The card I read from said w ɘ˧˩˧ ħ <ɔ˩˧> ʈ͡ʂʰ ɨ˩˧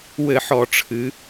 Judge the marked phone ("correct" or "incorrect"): incorrect